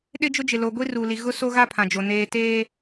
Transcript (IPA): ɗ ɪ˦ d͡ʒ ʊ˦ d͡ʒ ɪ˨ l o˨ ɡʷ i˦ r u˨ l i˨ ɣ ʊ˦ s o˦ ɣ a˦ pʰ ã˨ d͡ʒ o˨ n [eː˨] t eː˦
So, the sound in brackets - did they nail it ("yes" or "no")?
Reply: yes